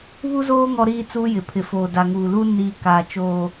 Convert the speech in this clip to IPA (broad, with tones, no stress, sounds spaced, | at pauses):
β u˦ z oː˦ ŋ ɔ˦ ɾ iː˦ t͡s uː˦ j ɪ˨ pʰ ɪ˨ f oː˨ d a˨ ŋ uː˨ l u˦ n iː˨ k aː˨ t͡ʃ oː˨